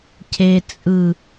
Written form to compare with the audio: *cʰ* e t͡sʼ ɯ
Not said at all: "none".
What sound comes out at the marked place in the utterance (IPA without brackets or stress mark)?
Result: cʰ